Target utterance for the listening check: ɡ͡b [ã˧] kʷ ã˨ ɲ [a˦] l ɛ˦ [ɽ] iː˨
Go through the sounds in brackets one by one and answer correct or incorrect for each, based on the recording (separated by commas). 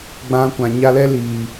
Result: correct, incorrect, incorrect